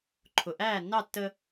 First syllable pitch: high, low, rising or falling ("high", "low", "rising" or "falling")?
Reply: low